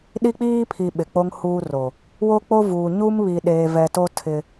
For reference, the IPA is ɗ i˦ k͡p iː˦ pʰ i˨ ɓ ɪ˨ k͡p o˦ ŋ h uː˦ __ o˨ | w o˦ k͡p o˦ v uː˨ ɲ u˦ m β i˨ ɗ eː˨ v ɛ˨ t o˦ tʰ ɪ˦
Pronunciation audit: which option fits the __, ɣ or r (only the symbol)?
r